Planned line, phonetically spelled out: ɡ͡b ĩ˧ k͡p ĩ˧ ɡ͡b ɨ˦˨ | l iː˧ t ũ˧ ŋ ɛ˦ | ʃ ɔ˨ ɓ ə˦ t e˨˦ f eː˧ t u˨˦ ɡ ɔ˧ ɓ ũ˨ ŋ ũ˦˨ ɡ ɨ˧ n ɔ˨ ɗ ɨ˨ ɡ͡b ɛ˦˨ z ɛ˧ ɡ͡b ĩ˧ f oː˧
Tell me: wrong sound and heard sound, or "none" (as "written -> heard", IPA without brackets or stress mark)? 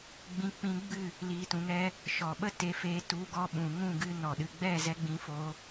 none